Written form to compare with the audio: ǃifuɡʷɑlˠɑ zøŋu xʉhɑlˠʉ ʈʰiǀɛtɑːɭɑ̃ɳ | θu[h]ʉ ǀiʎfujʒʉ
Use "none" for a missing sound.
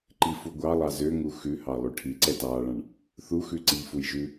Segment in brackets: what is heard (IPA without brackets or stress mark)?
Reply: x